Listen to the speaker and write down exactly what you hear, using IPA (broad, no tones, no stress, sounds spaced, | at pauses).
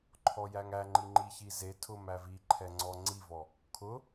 ǃʰ ɔ j æ ŋ æ ŋ͡ǃ i ŋ͡ǃ i ç i z e tʰ ʊ m æ v i ǃʰ ɛ ŋ͡ǀ ɔ ŋ͡ǀ i v ɔ | kʰ ʊ